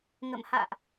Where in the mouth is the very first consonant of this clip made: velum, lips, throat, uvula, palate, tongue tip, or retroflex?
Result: velum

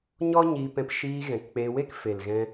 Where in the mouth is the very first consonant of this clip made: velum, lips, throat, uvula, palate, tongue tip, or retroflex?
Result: palate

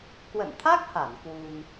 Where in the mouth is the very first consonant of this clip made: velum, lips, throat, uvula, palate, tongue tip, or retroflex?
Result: velum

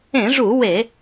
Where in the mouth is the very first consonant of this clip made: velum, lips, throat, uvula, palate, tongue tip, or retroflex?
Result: retroflex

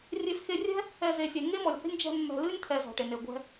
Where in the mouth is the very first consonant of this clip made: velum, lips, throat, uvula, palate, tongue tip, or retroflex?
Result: tongue tip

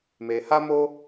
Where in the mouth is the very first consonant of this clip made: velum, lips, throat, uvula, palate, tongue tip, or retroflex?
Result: lips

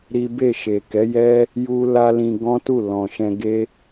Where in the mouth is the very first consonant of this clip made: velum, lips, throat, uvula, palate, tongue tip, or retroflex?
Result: tongue tip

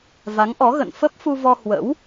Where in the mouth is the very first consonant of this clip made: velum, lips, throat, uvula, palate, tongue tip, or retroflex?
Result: lips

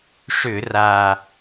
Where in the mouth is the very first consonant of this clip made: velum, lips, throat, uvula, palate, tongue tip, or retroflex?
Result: retroflex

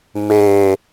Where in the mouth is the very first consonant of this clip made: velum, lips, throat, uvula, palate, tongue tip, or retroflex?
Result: lips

